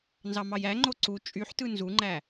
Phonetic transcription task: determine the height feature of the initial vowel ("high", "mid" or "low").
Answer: low